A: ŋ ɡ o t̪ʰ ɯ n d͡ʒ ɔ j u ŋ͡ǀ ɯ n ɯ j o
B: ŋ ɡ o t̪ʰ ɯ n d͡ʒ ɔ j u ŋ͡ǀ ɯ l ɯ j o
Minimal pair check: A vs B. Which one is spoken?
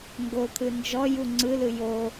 B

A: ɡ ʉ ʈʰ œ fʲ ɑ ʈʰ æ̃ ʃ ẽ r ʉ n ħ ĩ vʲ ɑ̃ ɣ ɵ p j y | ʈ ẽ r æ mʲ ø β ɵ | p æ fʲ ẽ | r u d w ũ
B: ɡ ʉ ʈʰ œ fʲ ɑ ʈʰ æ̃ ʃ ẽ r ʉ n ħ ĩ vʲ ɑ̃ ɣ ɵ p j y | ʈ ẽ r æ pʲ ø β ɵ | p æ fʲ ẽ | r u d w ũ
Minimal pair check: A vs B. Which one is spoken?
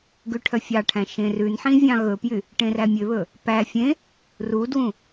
A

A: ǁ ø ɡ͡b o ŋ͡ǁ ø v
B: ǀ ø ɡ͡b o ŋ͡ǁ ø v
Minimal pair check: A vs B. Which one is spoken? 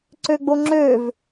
B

